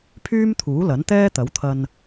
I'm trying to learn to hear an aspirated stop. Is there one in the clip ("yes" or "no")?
yes